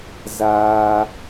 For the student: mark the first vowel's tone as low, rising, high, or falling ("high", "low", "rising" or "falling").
high